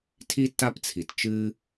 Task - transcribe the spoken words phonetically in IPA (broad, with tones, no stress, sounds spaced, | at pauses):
tʰ i˥ tː a˥ p t͡sʰ i˩ t t͡ʃ ɨ˧